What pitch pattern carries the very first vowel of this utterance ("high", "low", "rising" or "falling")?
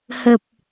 low